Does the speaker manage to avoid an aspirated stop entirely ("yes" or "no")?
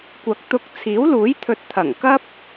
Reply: no